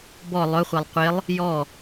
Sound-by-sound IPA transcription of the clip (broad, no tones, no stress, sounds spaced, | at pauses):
b ɔ lˠ ɵ χʷ e lˠ qʷ e lˠ | j ɔ